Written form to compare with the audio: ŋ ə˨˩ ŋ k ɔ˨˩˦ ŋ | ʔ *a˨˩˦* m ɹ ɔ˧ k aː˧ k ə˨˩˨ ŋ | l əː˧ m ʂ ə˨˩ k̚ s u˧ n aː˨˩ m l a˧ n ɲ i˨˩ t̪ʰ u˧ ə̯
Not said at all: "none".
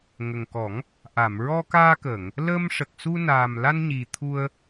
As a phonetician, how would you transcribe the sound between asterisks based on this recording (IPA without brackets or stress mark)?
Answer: a˨˩˨